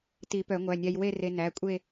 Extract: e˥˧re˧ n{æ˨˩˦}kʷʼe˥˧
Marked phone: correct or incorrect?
incorrect